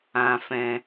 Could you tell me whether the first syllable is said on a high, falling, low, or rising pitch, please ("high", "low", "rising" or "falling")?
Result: low